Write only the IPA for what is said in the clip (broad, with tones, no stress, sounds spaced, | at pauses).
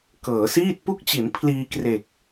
k ɤː˩˦ s iː˥˩ t̚ p u˥˩ k̚ t͡ɕ i˩˦ n pʰ l iː˧ k r e˨˩ k̚